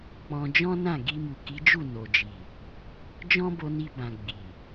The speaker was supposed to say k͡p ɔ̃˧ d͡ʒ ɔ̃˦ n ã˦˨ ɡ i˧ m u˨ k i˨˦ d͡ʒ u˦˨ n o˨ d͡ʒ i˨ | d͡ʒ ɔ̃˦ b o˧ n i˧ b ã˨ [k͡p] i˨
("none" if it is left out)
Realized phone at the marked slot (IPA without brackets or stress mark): ɡ͡b